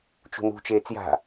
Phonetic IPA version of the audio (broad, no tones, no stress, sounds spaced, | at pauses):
t͡ʃ ṳ n ṳ t͡ʃ eː t͡s j a̤